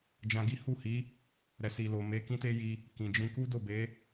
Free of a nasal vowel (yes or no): no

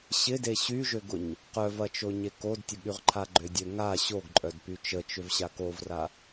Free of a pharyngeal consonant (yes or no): yes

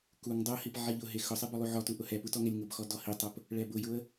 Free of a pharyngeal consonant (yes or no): no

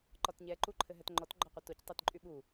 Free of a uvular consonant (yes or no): no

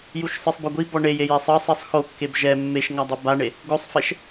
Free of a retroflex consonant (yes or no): no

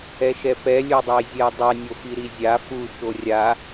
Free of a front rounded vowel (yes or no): yes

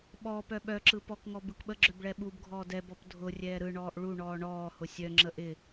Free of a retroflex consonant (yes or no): no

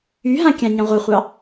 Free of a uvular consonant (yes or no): no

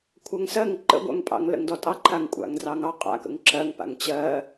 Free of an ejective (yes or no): no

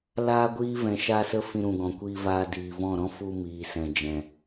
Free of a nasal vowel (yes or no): no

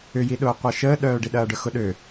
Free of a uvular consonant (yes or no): no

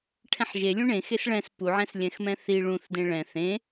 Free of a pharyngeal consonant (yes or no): no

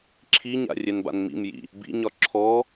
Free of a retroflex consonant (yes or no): yes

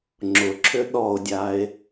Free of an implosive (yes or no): no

